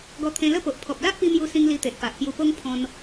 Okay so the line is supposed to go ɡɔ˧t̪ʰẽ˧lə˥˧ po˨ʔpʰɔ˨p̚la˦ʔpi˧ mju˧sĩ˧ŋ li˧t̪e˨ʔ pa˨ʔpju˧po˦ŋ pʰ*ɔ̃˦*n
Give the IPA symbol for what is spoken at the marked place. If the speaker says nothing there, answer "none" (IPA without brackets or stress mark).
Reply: ɔ̃˦